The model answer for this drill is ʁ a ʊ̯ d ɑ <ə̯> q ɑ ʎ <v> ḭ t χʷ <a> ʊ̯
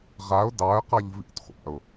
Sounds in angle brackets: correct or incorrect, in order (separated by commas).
correct, correct, incorrect